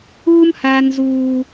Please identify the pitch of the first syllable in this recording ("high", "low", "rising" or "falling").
high